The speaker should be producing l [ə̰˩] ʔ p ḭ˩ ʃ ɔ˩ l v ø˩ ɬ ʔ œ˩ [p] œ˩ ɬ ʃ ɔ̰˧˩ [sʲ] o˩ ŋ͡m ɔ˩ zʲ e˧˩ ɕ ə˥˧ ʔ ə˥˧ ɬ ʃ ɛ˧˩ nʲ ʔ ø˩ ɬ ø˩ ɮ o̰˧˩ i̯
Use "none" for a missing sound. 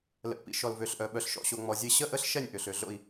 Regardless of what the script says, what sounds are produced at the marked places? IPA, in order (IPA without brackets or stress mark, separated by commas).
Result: ə̰˩, ɓ, ɕ